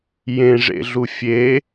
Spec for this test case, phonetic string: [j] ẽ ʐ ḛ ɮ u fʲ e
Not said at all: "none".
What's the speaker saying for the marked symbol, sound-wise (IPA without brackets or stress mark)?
j